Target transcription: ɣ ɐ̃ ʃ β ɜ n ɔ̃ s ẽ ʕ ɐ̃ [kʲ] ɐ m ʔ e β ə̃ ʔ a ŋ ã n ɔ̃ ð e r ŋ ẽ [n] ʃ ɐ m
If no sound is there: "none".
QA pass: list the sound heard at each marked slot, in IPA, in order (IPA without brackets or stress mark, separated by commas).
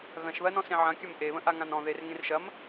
kʲ, r